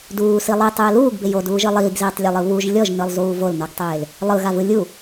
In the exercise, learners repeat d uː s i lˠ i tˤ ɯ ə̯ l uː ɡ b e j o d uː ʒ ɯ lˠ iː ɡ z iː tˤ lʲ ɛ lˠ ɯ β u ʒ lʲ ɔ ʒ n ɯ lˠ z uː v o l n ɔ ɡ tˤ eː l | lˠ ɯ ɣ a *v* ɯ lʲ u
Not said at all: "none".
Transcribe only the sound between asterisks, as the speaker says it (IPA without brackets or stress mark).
v